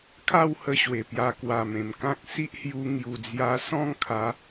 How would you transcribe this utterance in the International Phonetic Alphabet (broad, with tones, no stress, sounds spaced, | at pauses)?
kʰ a˥˧ w h ə˧ ɕ w e˨˩ p j a˧ k w a˨˩ m ẽ˨˩ m k ã˦ k̚ s i˦ ʔ h j u˧ ŋ j u˨˩ d͡z j a˧ s ɔ̃˥˧ ŋ kʰ a˨˦